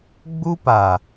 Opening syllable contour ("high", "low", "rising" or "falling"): high